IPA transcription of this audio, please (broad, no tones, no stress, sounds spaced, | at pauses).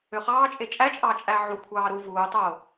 ø χ ɑː t͡ʃʼ e t͡ʃʼ æ t͡ʃʼ ɑː t͡ʃʼ æ ʕ u kʷʰ ɑː ɾ u v uː tˤ oː